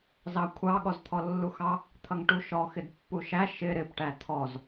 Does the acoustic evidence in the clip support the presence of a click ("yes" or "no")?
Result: no